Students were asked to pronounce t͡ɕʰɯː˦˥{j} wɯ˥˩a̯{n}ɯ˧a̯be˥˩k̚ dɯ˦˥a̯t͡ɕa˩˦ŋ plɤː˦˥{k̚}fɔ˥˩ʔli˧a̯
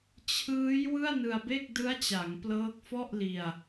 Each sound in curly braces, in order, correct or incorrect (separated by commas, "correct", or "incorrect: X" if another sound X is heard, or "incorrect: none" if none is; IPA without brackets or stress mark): correct, correct, correct